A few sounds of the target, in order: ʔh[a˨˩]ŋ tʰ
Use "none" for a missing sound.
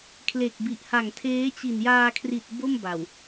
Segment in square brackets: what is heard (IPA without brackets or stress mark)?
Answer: a˨˩